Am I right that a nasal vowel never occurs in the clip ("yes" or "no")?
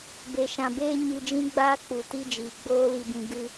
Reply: no